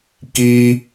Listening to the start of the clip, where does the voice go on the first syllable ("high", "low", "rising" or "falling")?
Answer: high